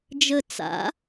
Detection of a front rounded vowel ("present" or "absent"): absent